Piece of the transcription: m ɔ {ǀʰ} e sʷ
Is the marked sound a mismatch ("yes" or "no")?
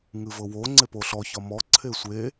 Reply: no